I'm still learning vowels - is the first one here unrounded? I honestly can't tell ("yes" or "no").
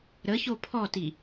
yes